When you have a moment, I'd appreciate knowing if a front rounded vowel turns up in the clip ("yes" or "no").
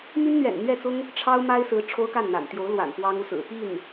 yes